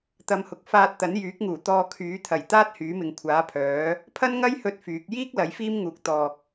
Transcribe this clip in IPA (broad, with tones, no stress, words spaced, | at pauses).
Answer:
t̪ɐ˨˧mhʊ˨˥k̚ faː˧t̚t̪ɐ˨˥njyː˨˥k̚ŋuː˨˩ t̪ɔː˧kʰyː˨˥ t̪ʰɐ˨˩jt̪aː˥t̚ hyː˨˥mɪ˨ŋkʷʰaː˨˥pʰœː˨˥ | pʰɐ˥nŋɐ˥j hɵ˥t̚fyː˨˥k̚ jiː˥k̚ lɐ˨˥jfiː˥mŋuː˨k̚ t̪ɔː˨k̚